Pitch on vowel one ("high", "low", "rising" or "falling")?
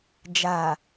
low